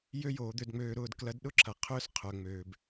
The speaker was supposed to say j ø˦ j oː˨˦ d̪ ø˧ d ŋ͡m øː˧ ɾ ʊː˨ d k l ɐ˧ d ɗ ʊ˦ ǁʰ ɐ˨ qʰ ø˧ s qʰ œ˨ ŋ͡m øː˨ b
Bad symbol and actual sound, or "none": none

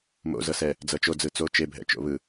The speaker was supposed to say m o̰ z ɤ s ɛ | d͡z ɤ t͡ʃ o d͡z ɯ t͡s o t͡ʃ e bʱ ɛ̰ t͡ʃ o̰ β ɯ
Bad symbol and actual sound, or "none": none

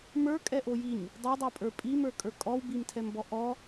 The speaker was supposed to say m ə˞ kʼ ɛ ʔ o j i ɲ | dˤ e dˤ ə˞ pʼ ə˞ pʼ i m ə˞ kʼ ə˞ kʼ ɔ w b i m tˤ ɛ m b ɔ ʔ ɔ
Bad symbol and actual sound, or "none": tˤ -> tʰ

